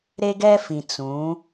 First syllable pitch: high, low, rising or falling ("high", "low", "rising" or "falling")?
high